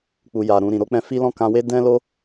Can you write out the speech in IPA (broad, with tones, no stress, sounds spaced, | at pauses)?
k͡p u˨ j a˨ ɾ ũ˨ ɾ ĩ˨ ɾ o˨˦ k͡p ɛ̃˧ f i˦ l ɔ̃˦ k ã˧ w e˦ d ɛ̃˦ l o˦